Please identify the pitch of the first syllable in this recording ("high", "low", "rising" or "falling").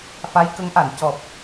rising